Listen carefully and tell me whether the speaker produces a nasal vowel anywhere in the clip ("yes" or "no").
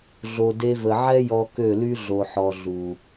no